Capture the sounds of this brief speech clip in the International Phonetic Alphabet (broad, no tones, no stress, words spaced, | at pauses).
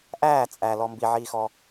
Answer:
ʔæː t͡sʼæ lɔmbiʕiːxɔ